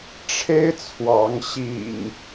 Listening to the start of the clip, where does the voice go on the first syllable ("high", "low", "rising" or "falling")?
high